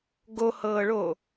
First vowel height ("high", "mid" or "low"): mid